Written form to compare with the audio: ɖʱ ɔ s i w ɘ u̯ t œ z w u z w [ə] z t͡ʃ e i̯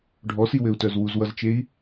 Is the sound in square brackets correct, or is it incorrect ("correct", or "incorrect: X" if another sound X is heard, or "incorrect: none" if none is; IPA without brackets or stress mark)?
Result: incorrect: ʌ